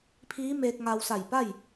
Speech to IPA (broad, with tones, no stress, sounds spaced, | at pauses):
pʰ iː˧˥ m eː˧ k̚ ŋ a˧ w s a˧˩ j p a˥˨ j